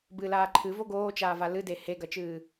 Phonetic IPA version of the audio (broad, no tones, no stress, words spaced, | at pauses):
bɨlaː ǃʰɨvo ɡoːt͡ʃaːva lɨde heɡɐt͡ʃɨː